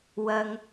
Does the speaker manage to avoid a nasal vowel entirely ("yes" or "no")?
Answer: yes